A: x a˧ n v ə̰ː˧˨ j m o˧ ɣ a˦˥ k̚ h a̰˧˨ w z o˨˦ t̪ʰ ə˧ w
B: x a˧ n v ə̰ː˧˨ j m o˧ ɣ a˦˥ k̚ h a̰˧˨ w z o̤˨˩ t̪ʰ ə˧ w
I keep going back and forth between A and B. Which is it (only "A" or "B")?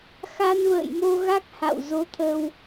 A